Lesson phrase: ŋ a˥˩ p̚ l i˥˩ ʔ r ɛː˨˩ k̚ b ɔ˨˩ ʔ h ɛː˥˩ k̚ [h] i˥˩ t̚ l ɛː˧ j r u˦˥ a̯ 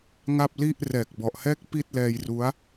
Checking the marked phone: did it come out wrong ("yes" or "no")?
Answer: yes